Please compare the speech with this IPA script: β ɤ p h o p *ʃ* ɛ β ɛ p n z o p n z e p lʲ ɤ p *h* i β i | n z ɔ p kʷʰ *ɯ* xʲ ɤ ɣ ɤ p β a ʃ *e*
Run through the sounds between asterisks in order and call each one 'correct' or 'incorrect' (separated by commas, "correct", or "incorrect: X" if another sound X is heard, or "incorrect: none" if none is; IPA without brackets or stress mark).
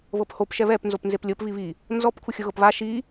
correct, incorrect: β, correct, incorrect: i